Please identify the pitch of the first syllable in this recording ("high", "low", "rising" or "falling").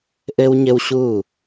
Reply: high